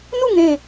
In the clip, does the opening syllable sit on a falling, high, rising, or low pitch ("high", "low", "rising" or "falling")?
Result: falling